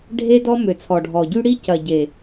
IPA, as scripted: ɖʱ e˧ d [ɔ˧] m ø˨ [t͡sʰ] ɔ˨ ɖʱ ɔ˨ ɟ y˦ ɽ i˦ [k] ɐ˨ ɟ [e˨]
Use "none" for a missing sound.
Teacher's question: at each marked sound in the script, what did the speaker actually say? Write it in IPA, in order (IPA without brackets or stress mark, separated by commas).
ɔ˧, t͡sʰ, c, e˨